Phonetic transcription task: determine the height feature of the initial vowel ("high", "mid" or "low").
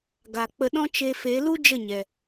low